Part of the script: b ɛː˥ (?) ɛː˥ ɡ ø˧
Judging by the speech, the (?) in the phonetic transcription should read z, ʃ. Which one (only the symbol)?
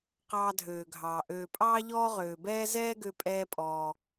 z